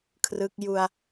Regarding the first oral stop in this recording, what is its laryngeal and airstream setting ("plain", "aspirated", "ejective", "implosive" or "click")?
aspirated